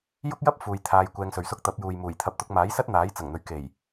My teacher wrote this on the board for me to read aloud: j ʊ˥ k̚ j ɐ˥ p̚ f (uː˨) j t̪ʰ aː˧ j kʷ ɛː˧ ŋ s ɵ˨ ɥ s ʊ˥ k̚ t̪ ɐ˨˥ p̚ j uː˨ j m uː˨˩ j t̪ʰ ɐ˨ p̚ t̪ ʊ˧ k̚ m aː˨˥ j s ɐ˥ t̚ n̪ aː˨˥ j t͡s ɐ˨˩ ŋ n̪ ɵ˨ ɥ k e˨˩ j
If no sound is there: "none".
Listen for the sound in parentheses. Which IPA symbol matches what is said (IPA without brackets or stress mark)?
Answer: uː˨